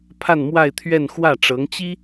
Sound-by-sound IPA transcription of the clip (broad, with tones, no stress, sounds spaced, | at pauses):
pʰ a˥˧ n m w a˥˧ ɪ̯ t̪ʰ ɥ ɛ˥˧ n x w ä˥˩ ʈ͡ʂ ɤ˧˥ ŋ t͡ɕ i˥